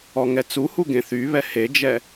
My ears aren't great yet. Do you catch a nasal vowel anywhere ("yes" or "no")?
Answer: yes